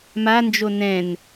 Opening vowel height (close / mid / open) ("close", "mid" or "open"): open